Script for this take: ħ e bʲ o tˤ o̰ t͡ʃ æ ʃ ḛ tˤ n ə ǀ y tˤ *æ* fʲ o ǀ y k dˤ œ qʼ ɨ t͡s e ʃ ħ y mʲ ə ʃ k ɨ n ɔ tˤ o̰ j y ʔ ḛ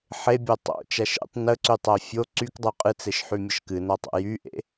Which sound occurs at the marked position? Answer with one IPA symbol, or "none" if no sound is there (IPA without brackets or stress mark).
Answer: æ